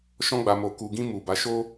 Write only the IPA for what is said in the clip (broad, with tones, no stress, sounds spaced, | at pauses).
ʃ ɔ̃˧ ɡ͡b a˨ m o˨ k u˨ ɡ ĩ˧ m u˨ b a˨˦ ʃ o˦